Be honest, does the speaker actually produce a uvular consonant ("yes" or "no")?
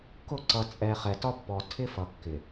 yes